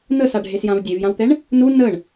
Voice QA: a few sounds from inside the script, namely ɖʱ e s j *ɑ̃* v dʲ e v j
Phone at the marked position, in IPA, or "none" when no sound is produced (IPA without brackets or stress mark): ã